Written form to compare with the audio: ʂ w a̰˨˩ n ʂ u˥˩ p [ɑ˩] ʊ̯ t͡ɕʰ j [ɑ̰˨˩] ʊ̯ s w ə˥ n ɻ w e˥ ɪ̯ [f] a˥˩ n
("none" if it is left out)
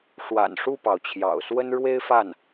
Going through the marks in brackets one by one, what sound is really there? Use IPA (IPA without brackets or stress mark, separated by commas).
ɑ˩, ɑ̰˨˩, f